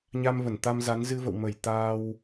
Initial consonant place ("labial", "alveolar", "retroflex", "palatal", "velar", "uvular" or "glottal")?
palatal